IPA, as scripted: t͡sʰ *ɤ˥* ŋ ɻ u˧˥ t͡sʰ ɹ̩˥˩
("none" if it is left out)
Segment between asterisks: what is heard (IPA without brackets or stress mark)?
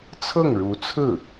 ɤ˥˩